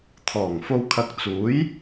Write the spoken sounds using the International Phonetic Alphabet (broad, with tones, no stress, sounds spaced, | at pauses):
t̪ʰ ɔː˨˩ ŋ f o˧ w kʰ ɐ˧ k̚ t͡s uː˨˥ j